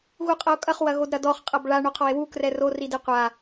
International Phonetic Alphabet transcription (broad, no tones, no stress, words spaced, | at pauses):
ɣuqʼɐo̯kʼɐχ wɐɣodɾɐdɔχ qʼɐbɭa ɳoqʰɔe̯wu krɛro ridiqʷa